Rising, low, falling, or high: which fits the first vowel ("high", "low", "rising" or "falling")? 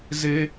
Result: high